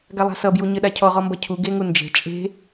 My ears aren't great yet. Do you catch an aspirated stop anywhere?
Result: yes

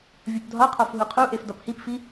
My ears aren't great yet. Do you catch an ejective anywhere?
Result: no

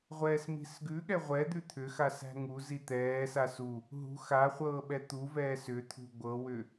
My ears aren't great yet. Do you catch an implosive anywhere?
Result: yes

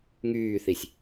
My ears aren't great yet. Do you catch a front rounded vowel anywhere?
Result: yes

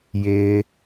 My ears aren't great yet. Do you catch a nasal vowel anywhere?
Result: no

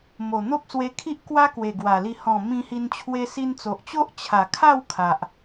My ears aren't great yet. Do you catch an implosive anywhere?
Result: no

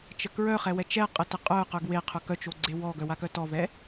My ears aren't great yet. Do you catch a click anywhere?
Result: yes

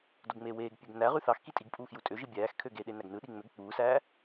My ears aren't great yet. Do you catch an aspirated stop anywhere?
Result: yes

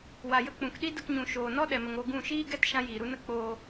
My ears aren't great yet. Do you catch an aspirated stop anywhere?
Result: no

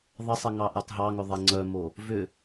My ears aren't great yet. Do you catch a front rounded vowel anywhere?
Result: yes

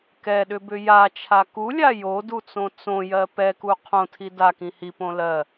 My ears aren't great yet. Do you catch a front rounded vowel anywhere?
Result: yes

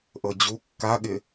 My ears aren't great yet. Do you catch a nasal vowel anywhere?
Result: no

